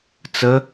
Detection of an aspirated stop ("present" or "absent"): absent